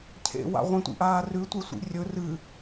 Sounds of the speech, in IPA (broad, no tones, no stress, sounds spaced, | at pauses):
cʰ ḛ w a̰ ʁʷ ẽ tʷ ḭ ʔ aː r ʉ tʷ e sʷ ḭ rʲ ɵ r ɨ